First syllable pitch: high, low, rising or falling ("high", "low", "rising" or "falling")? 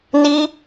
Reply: high